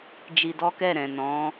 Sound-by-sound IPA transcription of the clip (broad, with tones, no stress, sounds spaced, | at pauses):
d͡ʒ i˧ d ɔ˦ k ɛ˦˨ ɾ ɛ̃˨ n ɔ̃˨˦